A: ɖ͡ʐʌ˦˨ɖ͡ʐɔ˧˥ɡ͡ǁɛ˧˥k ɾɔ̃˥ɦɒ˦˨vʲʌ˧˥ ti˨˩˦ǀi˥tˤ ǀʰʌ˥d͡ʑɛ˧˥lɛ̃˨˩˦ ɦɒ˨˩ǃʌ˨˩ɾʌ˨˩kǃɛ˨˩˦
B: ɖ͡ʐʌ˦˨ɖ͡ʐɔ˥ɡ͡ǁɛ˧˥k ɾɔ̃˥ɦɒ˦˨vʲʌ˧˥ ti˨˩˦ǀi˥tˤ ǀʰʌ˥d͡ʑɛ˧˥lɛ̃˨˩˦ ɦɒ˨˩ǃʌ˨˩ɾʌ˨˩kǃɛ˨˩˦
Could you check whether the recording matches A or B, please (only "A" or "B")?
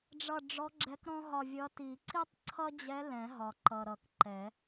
A